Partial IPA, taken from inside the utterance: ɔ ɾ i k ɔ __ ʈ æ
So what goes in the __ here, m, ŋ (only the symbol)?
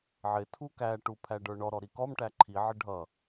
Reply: m